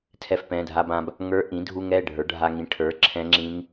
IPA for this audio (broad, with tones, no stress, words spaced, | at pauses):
tʰɛ˧fpɛ̃˩˧˩dʱa˧bã˧b | ŋə˞˧˥ʔĩ˩˥dʱu˧ŋɛ˩˧˩ ɖʱə˞˩˥ɖʱa˧ŋĩ˩˧˩ ʈʰə˞˩˥ǁʰɛ̃˧˥ŋ͡ǁĩ˧˥ŋ